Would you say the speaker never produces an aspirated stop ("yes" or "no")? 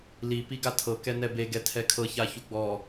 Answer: no